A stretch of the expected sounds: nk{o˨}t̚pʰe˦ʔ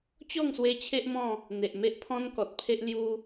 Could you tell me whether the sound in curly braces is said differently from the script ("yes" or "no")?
yes